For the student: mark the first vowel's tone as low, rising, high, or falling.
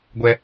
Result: high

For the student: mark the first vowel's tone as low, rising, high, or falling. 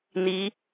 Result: rising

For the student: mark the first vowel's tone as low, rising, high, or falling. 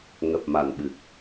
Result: low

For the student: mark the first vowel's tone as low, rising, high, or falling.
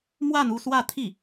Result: falling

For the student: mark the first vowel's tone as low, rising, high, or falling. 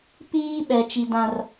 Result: high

